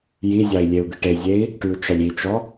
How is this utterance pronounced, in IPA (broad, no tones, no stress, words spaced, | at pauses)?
jizʲɑi̯ lʲeu̯d̪iʈezʲei̯ | ʈyu̯t͡ʃɑlʲit͡ʃɔ